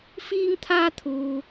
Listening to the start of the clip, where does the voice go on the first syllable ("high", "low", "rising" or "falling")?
high